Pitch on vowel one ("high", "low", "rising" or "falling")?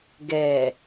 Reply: low